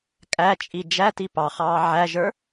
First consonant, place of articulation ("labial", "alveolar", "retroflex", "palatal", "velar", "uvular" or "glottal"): velar